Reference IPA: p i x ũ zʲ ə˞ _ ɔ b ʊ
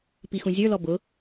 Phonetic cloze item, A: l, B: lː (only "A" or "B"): A